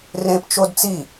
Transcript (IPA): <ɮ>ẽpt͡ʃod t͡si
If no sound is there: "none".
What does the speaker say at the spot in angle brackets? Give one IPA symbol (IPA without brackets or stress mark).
r